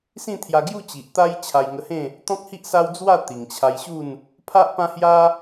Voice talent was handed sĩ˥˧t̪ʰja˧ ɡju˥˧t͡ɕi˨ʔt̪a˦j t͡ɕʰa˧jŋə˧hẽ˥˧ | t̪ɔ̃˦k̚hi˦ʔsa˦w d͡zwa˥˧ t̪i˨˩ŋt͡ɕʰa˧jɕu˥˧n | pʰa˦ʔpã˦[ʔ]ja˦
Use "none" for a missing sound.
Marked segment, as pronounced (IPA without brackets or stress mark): h